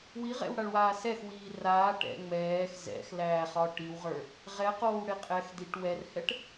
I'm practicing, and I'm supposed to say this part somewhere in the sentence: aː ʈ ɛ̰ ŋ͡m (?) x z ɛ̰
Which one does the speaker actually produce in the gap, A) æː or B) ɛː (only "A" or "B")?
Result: B